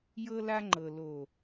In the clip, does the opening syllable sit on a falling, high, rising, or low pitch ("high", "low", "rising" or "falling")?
high